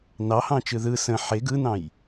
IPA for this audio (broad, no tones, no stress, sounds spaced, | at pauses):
n ɑ h ɑ̃ t͡ʃ ɯ ð ɯ s ə̃ ħ e ɡ ɯ n ɑ̃ j